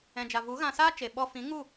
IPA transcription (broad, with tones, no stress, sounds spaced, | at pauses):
ɛ̃˨ d͡ʒ a˨ v u˨˦ ɣ ã˧ s aː˦ t͡ʃ e˨ ɓ ɔ˧ f ĩ˨˦ ŋ u˦˨